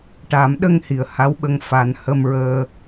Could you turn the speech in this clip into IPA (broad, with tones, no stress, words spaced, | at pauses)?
ʈa˨˩˦mɗə˧ŋ hi˨˩ə̯ha˧˥wɓə˧ŋ fa˧n hə˧mɹəː˧